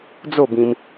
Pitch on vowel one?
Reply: falling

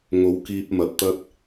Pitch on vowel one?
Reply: rising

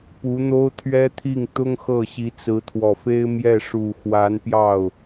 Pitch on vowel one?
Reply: rising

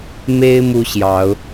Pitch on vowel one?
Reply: high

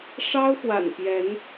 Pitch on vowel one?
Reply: high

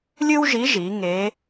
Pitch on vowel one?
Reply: high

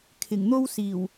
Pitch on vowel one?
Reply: low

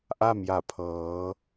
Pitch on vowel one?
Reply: falling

